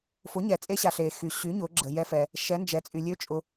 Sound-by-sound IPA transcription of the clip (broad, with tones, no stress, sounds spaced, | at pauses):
f ʊ˩˥ ɲ ɛ˩ t͡sʼ e˧˥ ɕ a˩ ɬ e˩ x y˩ ɕ y˩˥ ɲ ʊ˩˧ ɡ͡ǁ ə˩ j ɛ˧˥ f ɛ˩ | ʃ ɛ˩˥ n d͡ʒ ɛ˩ t͡sʼ y˩ lʲ ø˧˥ t͡ʃʼ ʊ˩˧